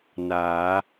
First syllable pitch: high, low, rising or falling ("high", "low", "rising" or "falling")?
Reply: rising